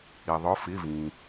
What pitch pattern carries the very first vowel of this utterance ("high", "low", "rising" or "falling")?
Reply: low